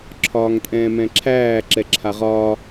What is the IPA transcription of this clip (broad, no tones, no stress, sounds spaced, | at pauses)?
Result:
ǁʰ ɒː ŋ tʼ ɛ̃ː m ɛ̃ ǁʰ æː ǁ ɛ ǁʰ a ʁ ɒː